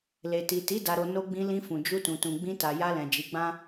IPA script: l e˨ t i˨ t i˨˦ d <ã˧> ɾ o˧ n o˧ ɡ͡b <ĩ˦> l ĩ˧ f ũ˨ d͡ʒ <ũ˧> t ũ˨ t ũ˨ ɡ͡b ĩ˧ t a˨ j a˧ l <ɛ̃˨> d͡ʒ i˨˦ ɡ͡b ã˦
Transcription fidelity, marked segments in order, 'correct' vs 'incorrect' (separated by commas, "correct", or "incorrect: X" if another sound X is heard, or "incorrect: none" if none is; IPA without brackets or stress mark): incorrect: a˧, incorrect: ĩ˧, incorrect: u˧, correct